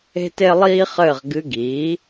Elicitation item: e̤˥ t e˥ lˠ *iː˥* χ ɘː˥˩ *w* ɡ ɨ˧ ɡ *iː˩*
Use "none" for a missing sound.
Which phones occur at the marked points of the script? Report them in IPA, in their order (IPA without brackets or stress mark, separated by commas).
iː˥, ʁ, iː˩˥